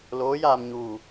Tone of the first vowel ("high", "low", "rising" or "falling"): rising